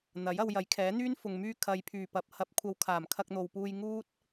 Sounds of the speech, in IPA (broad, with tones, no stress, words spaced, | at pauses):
n̪ɐ˨˥j ɐ˧wjɐ˨˥jkʰɛː˨˥n̪yː˥n fʊ˨ŋmyː˧ kʰɐ˨jpʰyː˨˩ pɐ˨p̚ hɐ˧p̚kʷʰɐ˧w kʰaː˨˩mkʰɐ˧k̚n̪o˨wpuː˧j ŋuː˥t̚